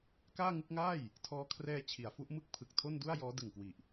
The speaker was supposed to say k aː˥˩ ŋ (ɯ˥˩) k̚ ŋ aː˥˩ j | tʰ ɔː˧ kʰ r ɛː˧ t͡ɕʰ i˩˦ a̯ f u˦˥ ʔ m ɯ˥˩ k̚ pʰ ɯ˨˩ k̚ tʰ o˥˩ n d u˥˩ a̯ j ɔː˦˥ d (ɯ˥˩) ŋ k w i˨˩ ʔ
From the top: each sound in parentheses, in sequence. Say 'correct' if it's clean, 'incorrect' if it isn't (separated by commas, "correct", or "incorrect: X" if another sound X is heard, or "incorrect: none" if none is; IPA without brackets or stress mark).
correct, incorrect: ɯ˨˩